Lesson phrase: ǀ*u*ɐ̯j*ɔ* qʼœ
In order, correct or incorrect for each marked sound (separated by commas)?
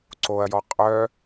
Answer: incorrect, correct